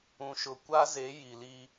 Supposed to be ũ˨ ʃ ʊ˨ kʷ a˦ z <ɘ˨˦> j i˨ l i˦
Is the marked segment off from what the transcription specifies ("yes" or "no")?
yes